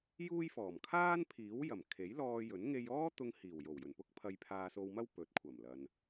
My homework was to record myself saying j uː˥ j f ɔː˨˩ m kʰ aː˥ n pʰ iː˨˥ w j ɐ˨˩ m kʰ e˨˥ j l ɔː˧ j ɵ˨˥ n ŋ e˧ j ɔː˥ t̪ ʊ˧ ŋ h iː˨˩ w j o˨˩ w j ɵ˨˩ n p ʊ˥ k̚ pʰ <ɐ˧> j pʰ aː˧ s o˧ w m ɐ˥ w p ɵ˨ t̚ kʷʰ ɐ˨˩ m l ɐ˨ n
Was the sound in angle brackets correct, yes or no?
yes